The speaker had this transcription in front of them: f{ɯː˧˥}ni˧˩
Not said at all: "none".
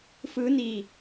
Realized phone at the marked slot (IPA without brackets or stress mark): ɯː˧˥